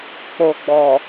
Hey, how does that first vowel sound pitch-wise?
low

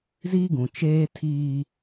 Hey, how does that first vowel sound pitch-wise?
high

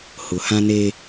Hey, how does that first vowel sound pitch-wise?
low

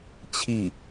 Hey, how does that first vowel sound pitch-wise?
falling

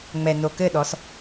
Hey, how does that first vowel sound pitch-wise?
low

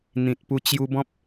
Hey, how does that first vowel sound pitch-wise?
low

